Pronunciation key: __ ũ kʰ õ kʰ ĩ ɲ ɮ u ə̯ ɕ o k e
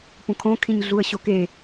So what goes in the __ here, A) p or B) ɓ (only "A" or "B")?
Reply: A